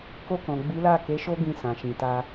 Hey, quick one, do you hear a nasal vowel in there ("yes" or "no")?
yes